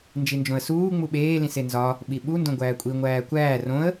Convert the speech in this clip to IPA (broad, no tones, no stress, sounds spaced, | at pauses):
n d͡ʒ i n d͡ʒ õ ə̯ s uː ŋ͡m u ɓ eː l ĩ s e n z ɒ | ɓ i ɓ u n d õ ɡʷ æː kʷʼ i ŋʷ æː kʷ æː r õ ə̯